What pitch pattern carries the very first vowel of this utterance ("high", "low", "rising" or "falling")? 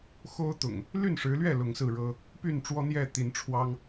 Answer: high